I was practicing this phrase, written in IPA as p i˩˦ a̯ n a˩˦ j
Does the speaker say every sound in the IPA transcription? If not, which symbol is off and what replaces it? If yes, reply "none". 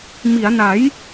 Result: p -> m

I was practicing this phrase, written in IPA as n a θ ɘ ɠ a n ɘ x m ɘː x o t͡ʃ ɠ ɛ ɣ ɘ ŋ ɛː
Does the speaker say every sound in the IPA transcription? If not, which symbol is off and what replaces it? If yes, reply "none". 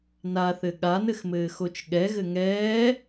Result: none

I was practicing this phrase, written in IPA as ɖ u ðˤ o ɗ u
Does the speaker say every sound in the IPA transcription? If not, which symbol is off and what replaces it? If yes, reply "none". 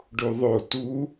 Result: ɗ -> t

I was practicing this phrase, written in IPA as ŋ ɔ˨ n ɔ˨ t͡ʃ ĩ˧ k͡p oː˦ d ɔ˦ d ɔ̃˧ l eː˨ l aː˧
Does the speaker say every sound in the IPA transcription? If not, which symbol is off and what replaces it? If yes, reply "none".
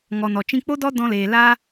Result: oː˦ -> o˦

